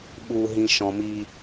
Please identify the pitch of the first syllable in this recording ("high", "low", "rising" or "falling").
low